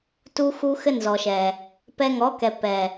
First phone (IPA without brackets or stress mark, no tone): t